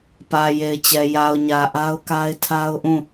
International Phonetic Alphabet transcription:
p ä˨ j e˨ ɪ̯ t͡ɕ ɛ˨ j a˨ ʊ̯ ɲ ä˨ ʔ a˦ ʊ̯ k a˦ ɪ̯ tʰ a˦ ʊ̯ ʔ ũ˦˨

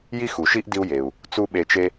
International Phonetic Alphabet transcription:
j i˥ x u˩ ʃ i˥ ʔ d i˥ u̯ j e˩ u̯ | t͡s u˥ ɓ e˧ t͡ʃ e˥

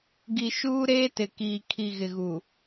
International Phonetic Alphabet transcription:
ɡ i˨ ʃ uː˦ ɾ eː˦ t ɪ˨ k iː˨ kʰ i˨ ɣ ɪ˨ ɣ u˨

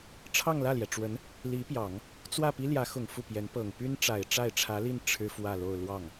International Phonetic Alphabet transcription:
ʈ͡ʂʰ ɑ˥˧ ŋ l ä˥˩ l j ɛ˩ ʈ͡ʂ w ə˧˥ n | l i˧˥ p j ɑ˨˩˦ ŋ | t͡s w ä˥˩ p i˥ l j ä˧˥ x ʊ˨˩ ŋ f u˥˩ p j ɛ˧˥ n p ɤ˨˩ ŋ p y˥ n ʈ͡ʂ a˨˩ ɪ̯ ʈ͡ʂ a˥˩ ɪ̯ ʈ͡ʂʰ ä˧˥ l i˥˩ n ʈ͡ʂʰ ɻ̩˥ f w ä˥˧ l o˥˧ ʊ̯ l w ɑ˥˩ ŋ

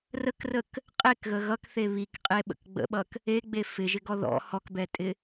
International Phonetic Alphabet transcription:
r ə k r ə k | qʼ e k ɣ ə ɣ ʌ k θ e β i k qʼ e ɓ ə̰ k ɡ͡b ə̰ ɓ ʌ k | e ɡ͡b e f ɪ ʒ ɪ ɡ ɔ ð ɔ̰ h ɔ k b ɛ tʼ ɪ

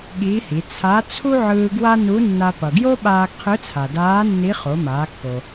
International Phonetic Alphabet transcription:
ɠ iː˧˥ h i˩˧ t͡sʰ a˧˥ t͡sʰ u˥ ʕ ɯː˧ ɡ w a˥ n u˧˥ nː a˧ p ʌ˩ ɡ j o˥ ɓ aː˧ ɡ qʰ ɯ˧˥ t͡sʰ a˩ d aː˧˥ nː i˧˥ χ o˩˧ m aː˩˧ kː o˩

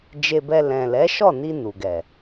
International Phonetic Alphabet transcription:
d͡ʒ e˧ b ɛ˧ l ɛ̃˨ l ɛ˨˦ ʃ ɔ˦˨ n i˧ n u˨ ɡ ɛ˨

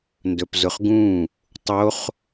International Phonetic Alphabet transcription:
n d ɵ p z ʊ χ ɡ ũ | tˤ o χ

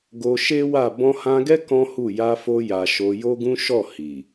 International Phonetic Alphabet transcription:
ɡ o˧ ʃ e˦ w a˦˨ b ɔ̃˧ h ã˧ ɡ ɛ˦ k ɔ̃˦ h u˦˨ j a˧ f o˧ j a˨ ʃ o˧ j o˦ ɡ ũ˦ ʃ ɔ˦˨ h i˨

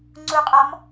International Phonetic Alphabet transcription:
ŋ͡ǀ u qʼ ɒ m

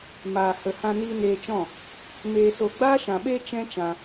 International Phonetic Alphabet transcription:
m aː˨ h ə˨ h ã˧ n iː˧ n eː˧ t͡ʃ ɔ̃˦˨ | m eː˨ s o˨ ɡ͡b aː˦ ʃ ã˨ ɓ eː˦ t͡ʃ ɛ̃˦ t͡ʃ ã˧

